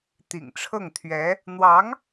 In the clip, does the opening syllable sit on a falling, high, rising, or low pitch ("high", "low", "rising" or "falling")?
low